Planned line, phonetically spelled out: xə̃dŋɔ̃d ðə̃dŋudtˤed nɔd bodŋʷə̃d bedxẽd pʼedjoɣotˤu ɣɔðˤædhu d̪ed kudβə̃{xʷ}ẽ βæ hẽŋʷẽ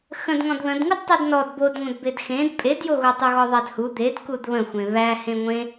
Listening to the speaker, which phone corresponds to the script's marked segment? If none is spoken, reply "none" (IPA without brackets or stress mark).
xʷ